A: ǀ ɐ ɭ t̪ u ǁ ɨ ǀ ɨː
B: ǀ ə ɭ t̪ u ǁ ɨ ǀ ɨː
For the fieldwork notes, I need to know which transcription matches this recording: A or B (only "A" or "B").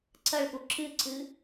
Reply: A